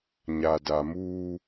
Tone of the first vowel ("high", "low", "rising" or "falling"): low